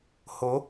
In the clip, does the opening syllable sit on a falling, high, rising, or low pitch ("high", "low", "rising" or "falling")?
rising